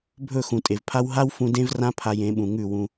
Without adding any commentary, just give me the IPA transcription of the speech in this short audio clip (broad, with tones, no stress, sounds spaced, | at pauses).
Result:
bʱ ɵ˦˨ x ũ˨ tʼ e˨ v pʰ a˦ w ɦ a˦ w f ũ˧ d ẽ˦ v r ã˦ pʰ a˧ j ẽ˨˦ ɓ ũ˨ ŋ ʉ˦˨ w ũ˧